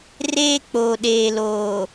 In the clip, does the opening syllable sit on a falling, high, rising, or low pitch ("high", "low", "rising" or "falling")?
high